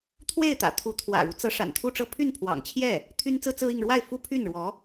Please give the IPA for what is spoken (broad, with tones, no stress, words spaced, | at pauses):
t̪ʰwe˥˩ɪ̯t̪ä̰˨˩ t̪ʰu˧˥ t̪ʰwä̰˨˩ɻu˦t͡sɤ˧˥ ʂa̰˨˩nt̪ʰu˥˧ʈ͡ʂɤ˥˧ pʰy˥˩npʰwɑ̰˨˩ŋt͡ɕʰjɛ˥˩ | t̪ʰy˥nt͡sɹ̩˥t͡sɹ̩˥i˥˧ŋ ɻwa˥˩ɪ̯fu˥pʰy˥˩nɻwɔ˧˥